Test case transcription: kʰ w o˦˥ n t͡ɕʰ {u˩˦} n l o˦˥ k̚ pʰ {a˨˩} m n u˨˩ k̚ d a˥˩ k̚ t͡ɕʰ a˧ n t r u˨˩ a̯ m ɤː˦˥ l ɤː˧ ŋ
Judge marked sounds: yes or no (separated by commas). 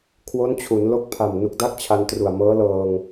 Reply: yes, yes